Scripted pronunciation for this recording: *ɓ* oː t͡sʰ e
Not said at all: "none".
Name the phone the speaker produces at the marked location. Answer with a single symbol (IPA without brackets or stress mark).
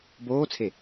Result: b